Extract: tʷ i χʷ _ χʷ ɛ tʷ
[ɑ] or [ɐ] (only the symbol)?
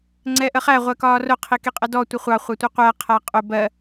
ɑ